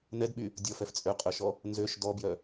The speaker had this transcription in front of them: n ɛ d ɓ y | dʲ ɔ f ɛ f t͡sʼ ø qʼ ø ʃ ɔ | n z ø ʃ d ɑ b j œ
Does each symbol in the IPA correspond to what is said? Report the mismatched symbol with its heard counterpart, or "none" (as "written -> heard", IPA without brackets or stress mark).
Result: ɑ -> ɔ